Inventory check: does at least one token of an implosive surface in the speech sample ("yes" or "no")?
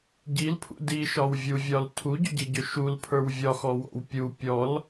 no